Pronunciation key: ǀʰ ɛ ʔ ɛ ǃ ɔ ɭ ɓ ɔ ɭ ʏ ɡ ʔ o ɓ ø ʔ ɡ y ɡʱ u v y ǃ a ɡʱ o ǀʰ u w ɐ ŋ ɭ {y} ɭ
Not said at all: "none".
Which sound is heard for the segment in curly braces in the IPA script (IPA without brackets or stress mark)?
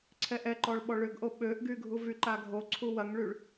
y